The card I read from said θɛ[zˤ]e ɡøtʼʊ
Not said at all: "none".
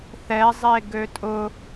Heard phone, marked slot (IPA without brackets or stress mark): zˤ